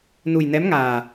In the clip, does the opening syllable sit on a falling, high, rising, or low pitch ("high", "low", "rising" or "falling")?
low